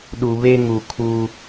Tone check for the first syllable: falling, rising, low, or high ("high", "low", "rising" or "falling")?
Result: low